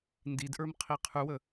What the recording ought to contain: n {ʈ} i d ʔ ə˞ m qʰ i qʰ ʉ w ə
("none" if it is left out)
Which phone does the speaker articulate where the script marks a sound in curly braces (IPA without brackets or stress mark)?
d